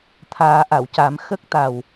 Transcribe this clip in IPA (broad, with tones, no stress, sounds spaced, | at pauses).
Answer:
t̪ʰ aː˨˩˦ ʔ a˨˩˨ w c a˨˩˦ m x ə˦˥ k̚ t̪ a˨˩ w